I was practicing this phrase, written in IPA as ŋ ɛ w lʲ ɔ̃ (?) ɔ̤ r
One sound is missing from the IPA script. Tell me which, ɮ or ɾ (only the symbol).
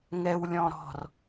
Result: ɾ